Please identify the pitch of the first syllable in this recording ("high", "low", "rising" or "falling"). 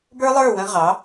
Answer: high